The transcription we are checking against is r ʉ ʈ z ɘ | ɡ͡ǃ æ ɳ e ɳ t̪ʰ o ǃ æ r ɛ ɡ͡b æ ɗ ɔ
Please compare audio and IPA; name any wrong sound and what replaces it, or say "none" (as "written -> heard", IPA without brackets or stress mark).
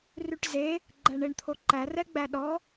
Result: ɘ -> e